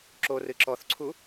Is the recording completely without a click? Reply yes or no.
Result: no